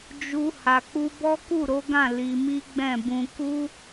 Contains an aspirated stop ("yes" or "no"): no